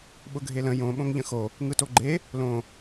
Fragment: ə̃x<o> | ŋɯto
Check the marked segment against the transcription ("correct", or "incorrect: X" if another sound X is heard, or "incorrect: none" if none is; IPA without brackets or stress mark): correct